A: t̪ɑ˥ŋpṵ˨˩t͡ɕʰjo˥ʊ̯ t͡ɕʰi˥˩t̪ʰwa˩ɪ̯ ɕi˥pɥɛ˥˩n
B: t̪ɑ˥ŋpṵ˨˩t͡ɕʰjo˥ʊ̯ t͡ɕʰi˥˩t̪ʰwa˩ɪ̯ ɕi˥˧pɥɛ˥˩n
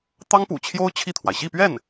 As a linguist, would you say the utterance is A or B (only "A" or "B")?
B